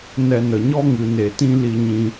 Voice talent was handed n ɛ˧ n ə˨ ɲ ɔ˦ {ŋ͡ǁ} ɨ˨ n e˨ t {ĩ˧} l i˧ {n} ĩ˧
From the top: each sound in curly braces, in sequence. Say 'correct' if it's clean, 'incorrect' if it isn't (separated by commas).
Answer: incorrect, correct, incorrect